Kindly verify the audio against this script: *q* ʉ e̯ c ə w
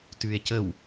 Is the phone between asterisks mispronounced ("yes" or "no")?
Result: yes